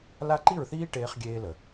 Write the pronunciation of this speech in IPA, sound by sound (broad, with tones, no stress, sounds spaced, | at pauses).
l a˦ ǃ i˦˨ ɹ θ iː˦ ʈ eː˧ χ ɡʲ eː˦ l ə˨